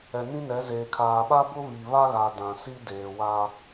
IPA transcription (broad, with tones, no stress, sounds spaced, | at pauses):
ɛ˨ n ĩ˦ n ɛ˨˦ z eː˨ kʰ aː˨ ɓ a˦ b ʊ˦ β i˨ β a˦ ɣ a˨ d ã˨ s i˦ d eː˨ w a˦